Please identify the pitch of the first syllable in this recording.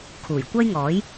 low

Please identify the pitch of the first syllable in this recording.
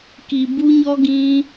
low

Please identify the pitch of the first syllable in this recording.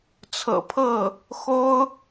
low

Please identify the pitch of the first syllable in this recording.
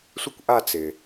high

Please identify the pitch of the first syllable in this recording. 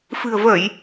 low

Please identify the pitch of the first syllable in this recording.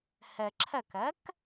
low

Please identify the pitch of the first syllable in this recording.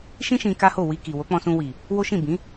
high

